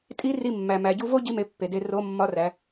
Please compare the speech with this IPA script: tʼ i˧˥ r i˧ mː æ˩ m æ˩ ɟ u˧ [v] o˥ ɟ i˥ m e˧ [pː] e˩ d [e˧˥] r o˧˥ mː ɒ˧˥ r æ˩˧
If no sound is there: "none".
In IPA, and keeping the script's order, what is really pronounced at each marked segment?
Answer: v, pː, e˧

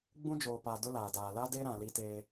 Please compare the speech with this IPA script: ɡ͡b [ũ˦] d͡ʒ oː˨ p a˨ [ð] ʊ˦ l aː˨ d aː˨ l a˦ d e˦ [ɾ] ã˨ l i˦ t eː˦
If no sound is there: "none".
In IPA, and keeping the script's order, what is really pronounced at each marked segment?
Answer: ũ˦, d, ɾ

